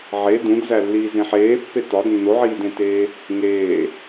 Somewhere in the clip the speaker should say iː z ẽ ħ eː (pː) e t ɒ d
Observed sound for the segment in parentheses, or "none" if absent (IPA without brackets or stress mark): pː